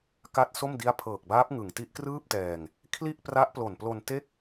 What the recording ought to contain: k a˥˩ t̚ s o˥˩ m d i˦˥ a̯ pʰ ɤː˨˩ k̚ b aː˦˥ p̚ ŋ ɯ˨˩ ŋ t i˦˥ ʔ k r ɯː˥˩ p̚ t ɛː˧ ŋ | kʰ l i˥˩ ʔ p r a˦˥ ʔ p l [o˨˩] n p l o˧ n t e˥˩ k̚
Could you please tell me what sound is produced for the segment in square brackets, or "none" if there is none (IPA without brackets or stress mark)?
o˨˩